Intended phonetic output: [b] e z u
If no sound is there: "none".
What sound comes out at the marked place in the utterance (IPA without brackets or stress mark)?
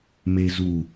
m